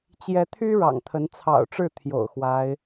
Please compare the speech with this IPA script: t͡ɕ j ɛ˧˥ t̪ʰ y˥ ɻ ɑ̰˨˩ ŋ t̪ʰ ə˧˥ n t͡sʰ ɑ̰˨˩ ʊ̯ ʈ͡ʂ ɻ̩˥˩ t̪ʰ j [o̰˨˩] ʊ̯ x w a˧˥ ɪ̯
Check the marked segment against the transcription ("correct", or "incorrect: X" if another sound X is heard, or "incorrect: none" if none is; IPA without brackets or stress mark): correct